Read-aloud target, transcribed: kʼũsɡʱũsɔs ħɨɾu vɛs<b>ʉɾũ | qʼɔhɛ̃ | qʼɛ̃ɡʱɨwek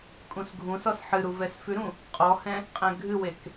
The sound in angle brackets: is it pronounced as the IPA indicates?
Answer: no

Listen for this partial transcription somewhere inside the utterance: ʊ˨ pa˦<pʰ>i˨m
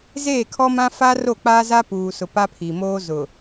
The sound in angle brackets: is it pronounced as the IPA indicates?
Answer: yes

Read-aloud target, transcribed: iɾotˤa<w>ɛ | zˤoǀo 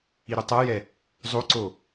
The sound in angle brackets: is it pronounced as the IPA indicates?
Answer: no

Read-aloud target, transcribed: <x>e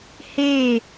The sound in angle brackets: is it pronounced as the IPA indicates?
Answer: no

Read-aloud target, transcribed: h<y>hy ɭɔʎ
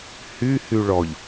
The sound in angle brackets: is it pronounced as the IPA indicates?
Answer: yes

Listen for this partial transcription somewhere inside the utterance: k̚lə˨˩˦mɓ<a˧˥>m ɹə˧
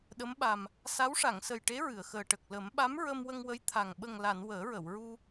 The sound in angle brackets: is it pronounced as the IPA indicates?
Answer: yes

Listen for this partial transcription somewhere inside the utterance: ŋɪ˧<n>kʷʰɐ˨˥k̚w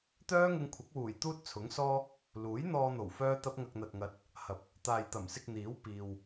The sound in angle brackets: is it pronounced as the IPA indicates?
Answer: no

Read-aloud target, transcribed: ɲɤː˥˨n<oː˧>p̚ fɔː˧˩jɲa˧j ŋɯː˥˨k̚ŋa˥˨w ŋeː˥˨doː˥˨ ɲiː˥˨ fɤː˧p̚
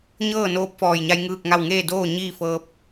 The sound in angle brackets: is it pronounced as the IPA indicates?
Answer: yes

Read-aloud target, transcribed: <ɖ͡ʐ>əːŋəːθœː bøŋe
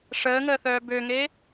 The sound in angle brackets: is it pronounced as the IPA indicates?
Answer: no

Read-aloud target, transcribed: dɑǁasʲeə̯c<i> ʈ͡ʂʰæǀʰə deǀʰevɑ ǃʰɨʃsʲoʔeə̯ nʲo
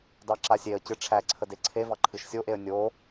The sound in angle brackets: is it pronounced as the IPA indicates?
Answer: no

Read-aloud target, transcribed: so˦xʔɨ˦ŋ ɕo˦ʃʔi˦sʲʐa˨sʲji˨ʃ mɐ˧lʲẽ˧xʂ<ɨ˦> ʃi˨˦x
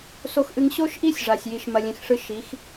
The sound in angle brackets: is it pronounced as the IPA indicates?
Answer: yes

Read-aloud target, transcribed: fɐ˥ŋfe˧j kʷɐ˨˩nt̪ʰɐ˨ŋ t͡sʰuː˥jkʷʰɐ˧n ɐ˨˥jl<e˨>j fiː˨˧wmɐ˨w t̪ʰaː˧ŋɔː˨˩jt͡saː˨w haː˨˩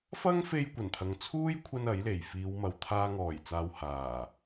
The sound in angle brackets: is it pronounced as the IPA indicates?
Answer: no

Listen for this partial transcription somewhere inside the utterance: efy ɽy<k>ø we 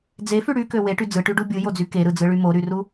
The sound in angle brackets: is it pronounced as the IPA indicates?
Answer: yes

